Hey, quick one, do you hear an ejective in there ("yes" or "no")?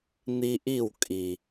yes